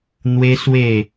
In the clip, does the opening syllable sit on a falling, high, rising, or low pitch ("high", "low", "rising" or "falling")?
high